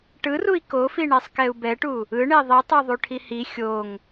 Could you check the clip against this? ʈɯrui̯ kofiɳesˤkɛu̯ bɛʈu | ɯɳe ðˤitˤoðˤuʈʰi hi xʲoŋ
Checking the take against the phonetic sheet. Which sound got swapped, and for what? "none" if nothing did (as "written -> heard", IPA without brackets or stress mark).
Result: none